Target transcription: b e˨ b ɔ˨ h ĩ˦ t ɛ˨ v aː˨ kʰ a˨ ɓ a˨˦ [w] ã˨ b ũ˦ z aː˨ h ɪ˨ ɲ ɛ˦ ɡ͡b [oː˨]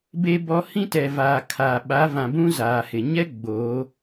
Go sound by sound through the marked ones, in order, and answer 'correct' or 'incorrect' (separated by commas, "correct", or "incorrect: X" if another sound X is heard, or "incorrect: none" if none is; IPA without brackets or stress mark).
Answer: incorrect: v, incorrect: oː˨˦